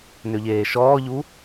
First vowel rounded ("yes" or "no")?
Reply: yes